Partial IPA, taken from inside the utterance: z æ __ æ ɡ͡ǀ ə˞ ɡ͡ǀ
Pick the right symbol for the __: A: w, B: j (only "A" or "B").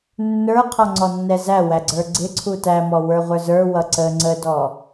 A